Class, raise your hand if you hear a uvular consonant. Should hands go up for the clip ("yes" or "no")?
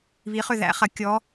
yes